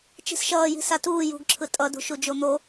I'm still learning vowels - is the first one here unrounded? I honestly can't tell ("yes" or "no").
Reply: yes